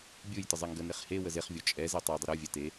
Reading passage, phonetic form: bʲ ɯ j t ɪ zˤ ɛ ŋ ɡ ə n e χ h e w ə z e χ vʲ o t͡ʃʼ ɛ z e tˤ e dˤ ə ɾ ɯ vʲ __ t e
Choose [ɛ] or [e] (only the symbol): ɛ